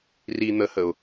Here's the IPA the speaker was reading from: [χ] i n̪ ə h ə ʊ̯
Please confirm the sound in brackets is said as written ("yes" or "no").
no